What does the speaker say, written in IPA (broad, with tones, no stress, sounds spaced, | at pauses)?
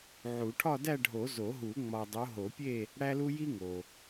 ʕ u˨˩˦ ʈʰ ɒ˥˧ d æ˥˧ ɖʱ o˨˩˦ z o˨˩˦ ɦ u˨˩˦ ŋ͡m ɒ˨ dˤ o˨˦ ɦ o˨˩˦ pʲ e˥˧ | ɽ æ˥ l u˥ j i˥ ŋ o˨